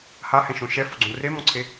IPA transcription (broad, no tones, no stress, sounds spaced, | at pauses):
h a h ɛ̃ ʃ õ ʃ ɛ f o ɡ͡ǀ õ r e m ɔ̃ ǀʰ e